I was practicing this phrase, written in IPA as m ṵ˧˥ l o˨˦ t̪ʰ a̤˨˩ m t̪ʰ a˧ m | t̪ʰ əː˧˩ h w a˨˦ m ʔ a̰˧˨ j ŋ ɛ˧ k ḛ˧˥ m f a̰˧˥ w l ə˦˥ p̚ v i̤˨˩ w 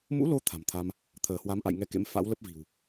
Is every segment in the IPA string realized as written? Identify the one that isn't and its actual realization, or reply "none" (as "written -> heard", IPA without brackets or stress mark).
none